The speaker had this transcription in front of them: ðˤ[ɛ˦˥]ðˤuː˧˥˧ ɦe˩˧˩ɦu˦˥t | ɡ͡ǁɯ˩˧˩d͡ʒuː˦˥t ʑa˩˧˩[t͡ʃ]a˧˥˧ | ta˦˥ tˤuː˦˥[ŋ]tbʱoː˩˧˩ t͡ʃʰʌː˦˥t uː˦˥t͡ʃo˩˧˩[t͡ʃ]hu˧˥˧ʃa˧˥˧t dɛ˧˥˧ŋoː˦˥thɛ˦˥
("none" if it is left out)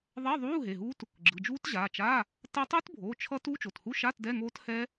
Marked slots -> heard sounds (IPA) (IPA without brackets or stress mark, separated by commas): ɛ˧˥˧, t͡ʃ, none, t